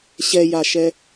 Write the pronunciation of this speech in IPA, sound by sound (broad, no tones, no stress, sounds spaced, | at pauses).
ɕ ɛ j a ʃ ɛ